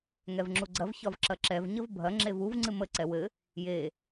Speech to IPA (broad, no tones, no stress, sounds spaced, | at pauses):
ŋ ɛ v ŋ͡ǁ u ɡ͡ǀ ɐ v ç ɒ v ǁ ɐ ǁ ɛ v ɲ ə v bʱ ɐ ŋ͡ǁ e v u v ŋ͡ǀ ɨ m ə ǀ ɛ w ɘ | j e